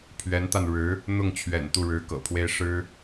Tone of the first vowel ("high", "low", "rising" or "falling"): rising